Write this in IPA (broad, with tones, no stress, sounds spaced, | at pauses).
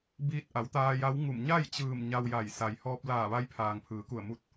b iː˧ t̚ ʔ a˩˧ w t̪ aː˧ j a˧˥ w ŋ u˧˩ m ɲ a˥˨ j t͡ɕ ɯː˧˩ m ɲ a˧ w j a˧˩ j s a˩ j h ɔː˧ p̚ l aː˧˩ ʋ a˧ j pʰ aː˩ ŋ pʰ ɯː˩˧ k u˧˩ ə̯ m u˧˩ t̚